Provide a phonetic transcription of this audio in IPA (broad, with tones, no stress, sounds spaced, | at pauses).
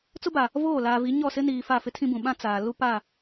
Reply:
t͡s ʊ˦ b a˨ | v oː˦˨ l aː˨ v i˨˦ ɲ ɔ˦˨ s ɪ˦ n iː˨ f a˦˨ f ɪ˦ tʰ ĩ˦ b ũ˨ ɓ ã˦ t͡s aː˨ l u˦ p a˦˨